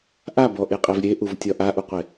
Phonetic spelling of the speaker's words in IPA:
ʔ a b ɔ ʔ e qʼ e v ɾʲ e ʔ u v tʲ ɒ ʔ a ʔ u qʷ e

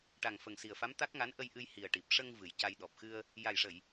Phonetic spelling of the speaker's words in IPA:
ʈ a˨˩ ŋ f ə˨˩ ŋ s i˨˩ ə̯ f a˧˥ m t̪ a˦˥ k̚ ŋ a˧˥ n ʔ ə˧ j ʔ ɨ˧ j h i˨˩ ə̯ ʈ i˨˩ p̚ ʂ ə˧ ŋ v ɨ˨˩ j c a˧ j ɗ ɔ˨˩ p̚ x ɨ˧ ə̯ | j a˨˩ j ʂ ə˨˩˨ j

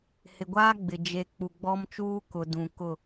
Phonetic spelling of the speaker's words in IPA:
h ɪ˨ ɡʷ aː˦ ɡ͡b ɪ˨ d͡ʒ e˨ k͡p u˨ ɡ͡b ɔ˦ m t͡ʃ uː˦ k ʊ˨ d ũ˨ k ʊ˦˨

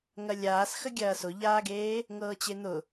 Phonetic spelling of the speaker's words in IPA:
ŋ ɐ lʲ aː s x ə ɡʲ ɐː s ʊ ʎ aː ɡ eː | ŋ ɤː t͡ɕ e n̪ ʊ

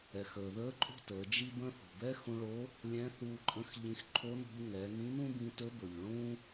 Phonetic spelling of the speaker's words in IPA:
ɛ˩ x əː˩ ð əː˧˥ ǃʼ o̤˥ t əː˩˧ d͡ʒ i˥ b ə̃ː˥ θ ṳ˩ b ɛ˥ x ũ˧ ɭ o˧˥ | lʲ ɛ̃˧˥ θ uː˧ ǃʼ ə̃˧˥ x ʎ ĩ˧ x ǃʰ o˧˥ n ṳ˧ ʎ ŋ ɛ˩˧ ŋ ĩ˧˥ n ũ˥ b ĩ˧ t ɵ˧˥ b ɵ˩ ʎ ɭ ũː˥

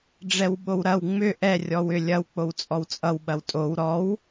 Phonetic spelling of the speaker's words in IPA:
ɖ͡ʐ ɛ w ɓ o w ɾ ɐ w ŋ͡m ʏ ʔ ɛ rʲ ɔ w ʏ lʲ ɐ w k͡p o w t͡sʼ ɔ w t͡sʼ ʌ w ɓ ɐ w tʼ o w ɾ ɔ w

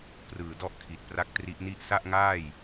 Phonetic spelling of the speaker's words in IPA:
p r ɯː˨˩ d ɔ˦˥ ʔ kʰ i˨˩ t̚ p r a˦˥ k̚ t r i˦˥ ʔ n i˥˩ ʔ s a˥˩ ʔ ŋ aː˥˩ j

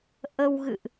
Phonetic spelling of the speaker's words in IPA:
ʔ ə˧ w ɣ ɨ̰˧˨ ʔ

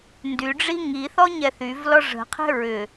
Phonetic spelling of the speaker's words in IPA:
n d y ɖ͡ʐ i ŋ i θ ɔ ɲ ɛ θ y v l ɔ ʐ ə̤ qʰ ɛ̤ ɹ ʏ

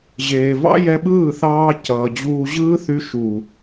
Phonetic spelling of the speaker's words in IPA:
ʑ eː˨ v ɑ̰˦ j ɛ˧ ɓ ɯː˦˨ θ ɑː˧ c ʌː˨ d͡ʑ uː˧ ʑ ɯː˦ θ y˧ ʃ uː˨

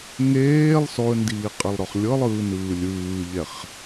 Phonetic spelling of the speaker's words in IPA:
ŋ eː lˠ s ɔ ə̯ n d iː qʼ ɛ lˠ ɾ ɔ χ lʲ ɤ lˠ ɯː n ɯː lʲ ɯː ʎ ɛ χ

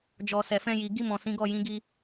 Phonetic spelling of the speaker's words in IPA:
d͡ʒ ɔ˨ s ɛ˨ f ɛ̃˧ j i˨ ɡ i˧ m ɔ̃˨ s ĩ˨˦ ɡ ɔ˦˨ j ĩ˨˦ ɡ i˧

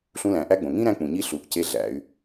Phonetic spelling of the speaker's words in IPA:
ɬ ũ˧˥ l æ̃˩˧ ʔ æ˥ ɡ͡b õ˩ ŋ ĩ˥ ɾ æ̃˧˥ k͡p ũ˩ ɲ i˧˥ ɬ u˩˧ ʔ c e˧˥ ɮ æ̰˩˧ y̯

